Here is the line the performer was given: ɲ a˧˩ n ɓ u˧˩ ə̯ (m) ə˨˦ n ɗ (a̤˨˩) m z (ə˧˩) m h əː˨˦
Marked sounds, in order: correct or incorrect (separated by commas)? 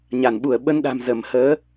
incorrect, correct, correct